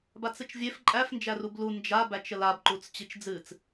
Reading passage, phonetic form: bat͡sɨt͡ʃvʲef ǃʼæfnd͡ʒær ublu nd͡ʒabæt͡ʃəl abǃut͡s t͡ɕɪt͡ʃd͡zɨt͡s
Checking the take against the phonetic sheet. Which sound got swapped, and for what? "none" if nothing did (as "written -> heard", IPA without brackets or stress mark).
ɪ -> i